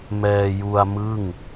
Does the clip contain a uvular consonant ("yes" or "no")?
no